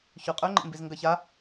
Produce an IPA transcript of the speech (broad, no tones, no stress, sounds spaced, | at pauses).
ç ʉ qʼ ɵ ŋ͡ǃ ḛ m b i z ŋ ɡ ɐ ç a